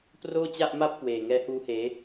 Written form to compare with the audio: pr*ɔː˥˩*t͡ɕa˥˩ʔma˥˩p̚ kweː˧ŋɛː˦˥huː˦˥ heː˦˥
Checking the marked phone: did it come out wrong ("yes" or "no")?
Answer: yes